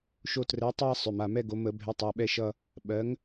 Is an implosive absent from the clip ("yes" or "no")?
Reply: no